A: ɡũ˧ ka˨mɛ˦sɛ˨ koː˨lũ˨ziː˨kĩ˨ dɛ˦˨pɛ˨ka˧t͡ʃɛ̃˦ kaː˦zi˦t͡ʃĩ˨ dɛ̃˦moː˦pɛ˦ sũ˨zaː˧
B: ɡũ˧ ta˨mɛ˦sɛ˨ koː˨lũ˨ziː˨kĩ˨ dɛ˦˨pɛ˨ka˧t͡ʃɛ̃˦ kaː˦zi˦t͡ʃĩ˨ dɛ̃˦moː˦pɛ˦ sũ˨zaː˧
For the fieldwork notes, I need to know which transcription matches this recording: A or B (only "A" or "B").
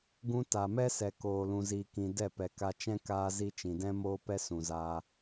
B